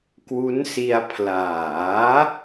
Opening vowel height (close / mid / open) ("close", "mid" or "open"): close